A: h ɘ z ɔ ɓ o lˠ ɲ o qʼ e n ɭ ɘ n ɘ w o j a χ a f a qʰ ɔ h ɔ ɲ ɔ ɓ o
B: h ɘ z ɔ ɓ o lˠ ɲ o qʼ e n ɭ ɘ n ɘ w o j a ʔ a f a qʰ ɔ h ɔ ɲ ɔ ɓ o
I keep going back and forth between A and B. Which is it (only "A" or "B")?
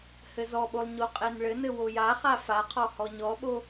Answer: A